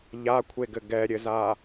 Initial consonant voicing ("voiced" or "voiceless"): voiced